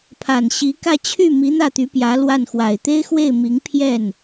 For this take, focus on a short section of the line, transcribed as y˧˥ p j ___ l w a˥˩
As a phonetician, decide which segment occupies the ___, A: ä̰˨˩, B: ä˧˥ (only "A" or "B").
B